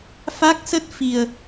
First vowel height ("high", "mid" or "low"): low